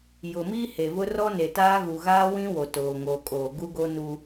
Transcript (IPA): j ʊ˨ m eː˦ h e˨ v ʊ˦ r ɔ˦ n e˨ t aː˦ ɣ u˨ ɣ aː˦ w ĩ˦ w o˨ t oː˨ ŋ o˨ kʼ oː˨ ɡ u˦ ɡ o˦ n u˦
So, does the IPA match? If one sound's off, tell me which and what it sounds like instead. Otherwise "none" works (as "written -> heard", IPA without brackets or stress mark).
eː˦ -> iː˦